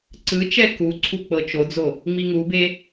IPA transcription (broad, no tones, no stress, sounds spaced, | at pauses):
ǀ ɯ t͡ʃ ɛ k u ǀʰ u k͡p ɤ t͡ʃ o d͡z o | ŋ͡m i ŋ u b e